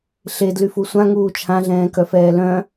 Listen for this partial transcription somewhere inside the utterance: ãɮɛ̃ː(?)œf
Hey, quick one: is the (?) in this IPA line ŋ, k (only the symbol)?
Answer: k